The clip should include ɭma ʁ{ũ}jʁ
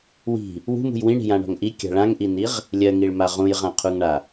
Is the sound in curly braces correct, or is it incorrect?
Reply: correct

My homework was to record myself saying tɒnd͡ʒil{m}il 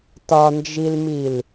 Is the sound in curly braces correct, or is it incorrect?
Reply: correct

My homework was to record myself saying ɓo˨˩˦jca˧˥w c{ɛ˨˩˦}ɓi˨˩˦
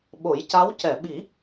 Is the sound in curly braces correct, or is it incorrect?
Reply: incorrect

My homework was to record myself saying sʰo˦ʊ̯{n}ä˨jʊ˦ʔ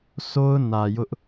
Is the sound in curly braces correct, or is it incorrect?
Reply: correct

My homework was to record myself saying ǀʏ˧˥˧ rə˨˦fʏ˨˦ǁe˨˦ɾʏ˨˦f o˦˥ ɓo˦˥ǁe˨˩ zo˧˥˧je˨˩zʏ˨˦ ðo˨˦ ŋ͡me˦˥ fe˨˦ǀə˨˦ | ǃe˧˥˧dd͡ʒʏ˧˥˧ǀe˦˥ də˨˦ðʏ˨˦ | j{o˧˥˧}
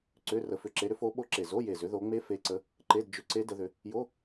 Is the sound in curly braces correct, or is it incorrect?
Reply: correct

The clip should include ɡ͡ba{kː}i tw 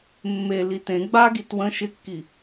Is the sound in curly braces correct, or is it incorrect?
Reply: incorrect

